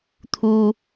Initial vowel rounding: rounded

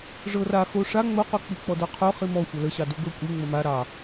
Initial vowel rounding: unrounded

